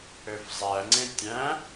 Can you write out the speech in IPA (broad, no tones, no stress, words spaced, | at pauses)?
øfzˤæŋ͡ǀẽ tʲæ̃